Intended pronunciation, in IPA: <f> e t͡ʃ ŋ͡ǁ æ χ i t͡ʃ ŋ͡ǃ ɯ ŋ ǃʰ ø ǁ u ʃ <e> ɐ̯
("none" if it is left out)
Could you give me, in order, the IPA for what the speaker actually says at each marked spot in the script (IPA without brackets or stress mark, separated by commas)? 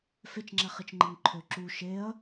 f, e